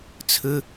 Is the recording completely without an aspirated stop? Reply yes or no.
no